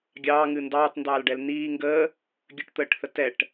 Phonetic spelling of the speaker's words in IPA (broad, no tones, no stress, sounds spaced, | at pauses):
ɡʲ ɑː ŋ ɨ n d ɑː t n d ɑː l ɖ ɛ l n iː ŋ ɡ əː | ɡʲ ə ʈ t̪ əː ʈ θ ə t ɛ ʈ